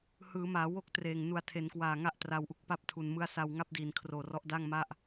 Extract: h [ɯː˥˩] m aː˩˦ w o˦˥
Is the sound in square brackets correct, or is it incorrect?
incorrect